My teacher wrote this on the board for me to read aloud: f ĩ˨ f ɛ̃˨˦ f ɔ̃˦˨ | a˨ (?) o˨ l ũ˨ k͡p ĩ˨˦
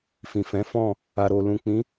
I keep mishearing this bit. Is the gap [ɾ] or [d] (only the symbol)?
ɾ